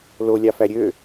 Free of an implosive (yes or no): yes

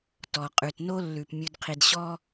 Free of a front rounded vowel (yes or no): yes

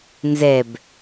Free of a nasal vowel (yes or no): yes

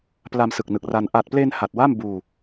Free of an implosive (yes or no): yes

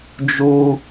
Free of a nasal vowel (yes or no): yes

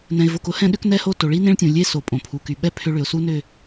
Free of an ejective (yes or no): no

